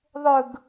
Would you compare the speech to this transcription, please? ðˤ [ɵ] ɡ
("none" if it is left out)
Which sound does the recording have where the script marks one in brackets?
ɵ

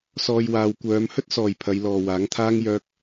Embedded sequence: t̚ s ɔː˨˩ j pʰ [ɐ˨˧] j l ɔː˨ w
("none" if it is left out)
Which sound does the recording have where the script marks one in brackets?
ɐ˨˧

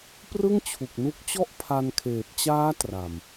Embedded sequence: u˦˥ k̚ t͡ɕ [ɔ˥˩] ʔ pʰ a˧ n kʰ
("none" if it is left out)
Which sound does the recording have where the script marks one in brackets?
ɔ˥˩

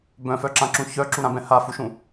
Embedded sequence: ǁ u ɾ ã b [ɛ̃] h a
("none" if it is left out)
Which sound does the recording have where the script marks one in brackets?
ɛ̃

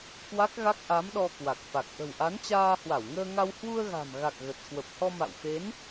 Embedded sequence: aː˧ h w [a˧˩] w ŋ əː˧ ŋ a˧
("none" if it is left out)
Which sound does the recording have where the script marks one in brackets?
a˧˩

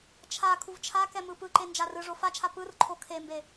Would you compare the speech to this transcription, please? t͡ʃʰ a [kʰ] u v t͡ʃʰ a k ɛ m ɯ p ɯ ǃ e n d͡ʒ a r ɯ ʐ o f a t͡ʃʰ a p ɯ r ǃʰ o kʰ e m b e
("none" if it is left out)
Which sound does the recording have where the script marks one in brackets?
kʰ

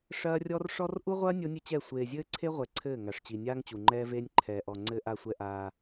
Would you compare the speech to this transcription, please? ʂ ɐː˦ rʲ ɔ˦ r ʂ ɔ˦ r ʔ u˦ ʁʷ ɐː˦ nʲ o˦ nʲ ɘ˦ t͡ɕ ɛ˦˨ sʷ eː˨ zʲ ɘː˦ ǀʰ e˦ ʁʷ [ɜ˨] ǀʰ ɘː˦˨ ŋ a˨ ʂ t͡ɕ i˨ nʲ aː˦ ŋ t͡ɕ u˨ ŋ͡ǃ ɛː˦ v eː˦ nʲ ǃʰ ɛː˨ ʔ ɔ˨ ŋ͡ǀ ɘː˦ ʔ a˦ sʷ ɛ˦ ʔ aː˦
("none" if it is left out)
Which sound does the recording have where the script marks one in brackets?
ɛ˨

